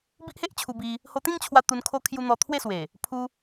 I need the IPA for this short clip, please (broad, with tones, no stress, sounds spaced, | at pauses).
b i˦ ʔ h e˦ ʔ t͡ɕʰ u˧ b i˧ | h o˧ t̪ ĩ˥˧ ŋ t͡ɕʰ w a˧ t̪ u˧ n kʰ o˦ kʰ j u˧ n̪ ɔ˧ t̪ʰ w e˥˧ s w e˨˩ | pʰ u˧